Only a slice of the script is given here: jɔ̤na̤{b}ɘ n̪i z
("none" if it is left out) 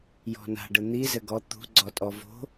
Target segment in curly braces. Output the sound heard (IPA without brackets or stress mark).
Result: ɖ